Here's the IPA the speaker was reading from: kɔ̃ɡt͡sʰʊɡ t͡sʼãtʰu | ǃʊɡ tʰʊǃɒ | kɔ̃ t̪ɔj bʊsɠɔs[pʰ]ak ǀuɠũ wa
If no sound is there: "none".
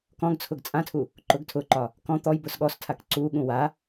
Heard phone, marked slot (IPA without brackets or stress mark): tʰ